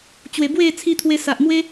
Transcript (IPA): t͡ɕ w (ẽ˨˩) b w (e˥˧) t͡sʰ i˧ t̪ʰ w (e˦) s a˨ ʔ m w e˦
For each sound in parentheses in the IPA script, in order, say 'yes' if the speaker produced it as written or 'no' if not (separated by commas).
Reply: no, yes, no